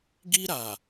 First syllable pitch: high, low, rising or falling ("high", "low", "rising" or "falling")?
high